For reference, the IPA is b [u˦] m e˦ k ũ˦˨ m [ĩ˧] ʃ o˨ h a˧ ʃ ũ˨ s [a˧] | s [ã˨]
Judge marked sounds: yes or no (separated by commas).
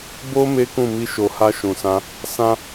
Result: no, no, no, no